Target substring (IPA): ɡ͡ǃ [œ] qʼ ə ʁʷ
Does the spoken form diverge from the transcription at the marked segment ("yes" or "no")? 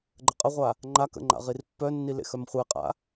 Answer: yes